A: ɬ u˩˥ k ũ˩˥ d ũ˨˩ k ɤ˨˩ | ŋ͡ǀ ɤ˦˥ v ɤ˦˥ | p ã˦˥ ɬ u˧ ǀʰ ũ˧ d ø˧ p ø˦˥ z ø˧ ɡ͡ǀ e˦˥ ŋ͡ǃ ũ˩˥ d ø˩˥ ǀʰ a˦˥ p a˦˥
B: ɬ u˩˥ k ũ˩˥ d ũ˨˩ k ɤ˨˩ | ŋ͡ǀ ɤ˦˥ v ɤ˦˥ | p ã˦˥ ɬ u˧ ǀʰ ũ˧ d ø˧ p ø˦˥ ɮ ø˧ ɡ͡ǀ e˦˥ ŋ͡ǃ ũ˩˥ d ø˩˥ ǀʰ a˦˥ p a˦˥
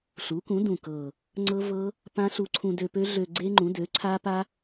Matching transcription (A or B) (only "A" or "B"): B